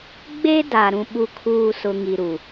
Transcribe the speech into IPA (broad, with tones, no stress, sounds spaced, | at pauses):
ɡ͡b e˦ d a˨ ɾ ũ˨ ɓ u˨ kʰ uː˨ s ʊ˨ ŋ i˨ ɾ u˨